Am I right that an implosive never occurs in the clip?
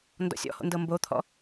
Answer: yes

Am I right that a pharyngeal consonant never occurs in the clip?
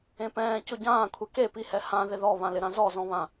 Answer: yes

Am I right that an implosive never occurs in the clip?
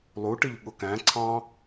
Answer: no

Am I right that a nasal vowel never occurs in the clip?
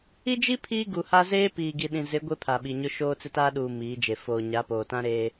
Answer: no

